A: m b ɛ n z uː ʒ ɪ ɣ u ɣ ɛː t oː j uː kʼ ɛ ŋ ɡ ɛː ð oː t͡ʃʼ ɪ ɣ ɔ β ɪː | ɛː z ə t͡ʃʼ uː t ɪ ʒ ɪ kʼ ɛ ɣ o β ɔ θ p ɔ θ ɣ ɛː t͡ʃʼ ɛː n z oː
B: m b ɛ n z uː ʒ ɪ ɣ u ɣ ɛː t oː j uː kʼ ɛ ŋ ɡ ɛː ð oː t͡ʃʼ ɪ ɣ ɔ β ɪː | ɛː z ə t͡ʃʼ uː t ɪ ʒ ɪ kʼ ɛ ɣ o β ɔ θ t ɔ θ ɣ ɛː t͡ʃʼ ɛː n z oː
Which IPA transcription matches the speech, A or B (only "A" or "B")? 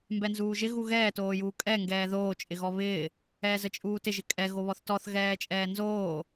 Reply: B